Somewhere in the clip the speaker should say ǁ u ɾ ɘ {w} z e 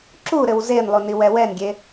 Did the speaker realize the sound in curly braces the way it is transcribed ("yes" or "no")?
yes